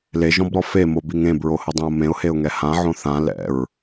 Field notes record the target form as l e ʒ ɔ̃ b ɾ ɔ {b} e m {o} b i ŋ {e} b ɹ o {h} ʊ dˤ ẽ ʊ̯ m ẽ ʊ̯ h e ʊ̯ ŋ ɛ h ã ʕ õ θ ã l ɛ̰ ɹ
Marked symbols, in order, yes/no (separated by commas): no, yes, no, yes